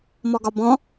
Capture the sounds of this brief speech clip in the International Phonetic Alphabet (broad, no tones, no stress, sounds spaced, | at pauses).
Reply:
m ɔ ɡ ɒ b ɔ̃